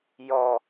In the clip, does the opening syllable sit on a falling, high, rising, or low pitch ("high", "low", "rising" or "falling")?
low